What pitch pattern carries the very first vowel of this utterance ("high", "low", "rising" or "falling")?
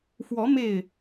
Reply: rising